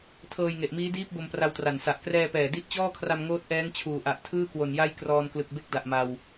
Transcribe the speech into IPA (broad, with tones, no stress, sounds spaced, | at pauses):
tʰ ɤː˧ j ŋ e˨˩ ʔ m iː˦˥ d iː˦˥ p̚ b o˧ m p r a˧ w t r a˨˩ n s a˨˩ ʔ k r ɛː˧ p ɛː˨˩ d i˦˥ ʔ t͡ɕ ɔː˥˩ kʰ r a˧ m ŋ oː˦˥ t̚ ʔ ɛː˦˥ ŋ t͡ɕʰ uː˨˩ ʔ a˨˩ ʔ tʰ ɯː˥˩ k w o˨˩ n j a˥˩ j k r ɔː˧ n k l ɯ˨˩ k̚ b e˥˩ k̚ d a˨˩ ʔ m a˧ w